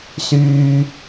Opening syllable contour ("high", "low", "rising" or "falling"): low